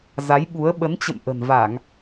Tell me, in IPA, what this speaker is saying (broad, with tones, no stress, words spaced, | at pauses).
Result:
za˨˦jɓu˨˦ə̯ ɓə˨˦nt͡ɕə̰˧˨m ʔə̤˨˩nva˧˩˨ŋ